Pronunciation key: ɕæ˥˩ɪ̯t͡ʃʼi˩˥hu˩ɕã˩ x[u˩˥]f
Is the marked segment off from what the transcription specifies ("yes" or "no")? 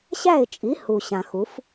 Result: no